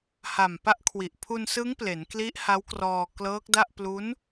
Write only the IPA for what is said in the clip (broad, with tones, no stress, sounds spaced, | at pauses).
h a˨˩ m p a˦˥ ʔ kʰ w i˨˩ ʔ pʰ u˧ n s ɯ˦˥ ŋ p l e˩˦ n k l i˦˥ ʔ h a˦˥ w k r ɔː˧ k l ɤː˦˥ k̚ d a˥˩ ʔ p l u˦˥ n